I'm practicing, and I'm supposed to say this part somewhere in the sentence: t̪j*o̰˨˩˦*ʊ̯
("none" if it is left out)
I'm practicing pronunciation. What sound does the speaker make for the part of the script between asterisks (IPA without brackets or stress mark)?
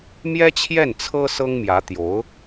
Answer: o˧˥